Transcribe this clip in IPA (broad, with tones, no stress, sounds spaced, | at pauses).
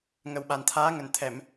ŋ ə˨˩ w ɓ a˨˩ n t̪ʰ aː˨˦ ŋ ə˨˩ n t̪ʰ ɛ˧˩˨ m